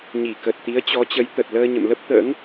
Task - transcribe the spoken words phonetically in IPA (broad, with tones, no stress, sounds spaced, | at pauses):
ɲ i˧˩ k ə˨˩ t̚ t̪ i˨˦ ə̯ t͡ɕ ɔ˨˦ t͡ɕ ə˨˦ j t̪ ə˨˩ t̚ l əː˧ ɲ ə̰˧˨ m l ə˦˥ p̚ t̪ ə̰ː˧˥ ŋ